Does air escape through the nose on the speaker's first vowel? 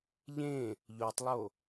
yes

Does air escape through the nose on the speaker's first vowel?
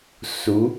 no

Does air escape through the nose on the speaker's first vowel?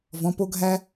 yes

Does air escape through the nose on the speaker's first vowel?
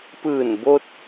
no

